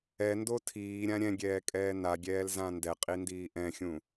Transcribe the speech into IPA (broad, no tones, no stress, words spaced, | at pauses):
ɛndo tʰiːɾʲã ɾʲɛ̃ɡʲɛːkʼɛː naɡʲɛːlzã ndɛqʼindiː ʔɛ̃xʲũ